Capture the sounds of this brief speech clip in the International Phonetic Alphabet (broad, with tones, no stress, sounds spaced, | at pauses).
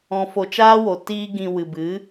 ɔ̃˧ f o˧ t͡ʃ aː˦ w o˨ t iː˧ ɡ ĩ˨ w ɨ˨ b ɨ˨˦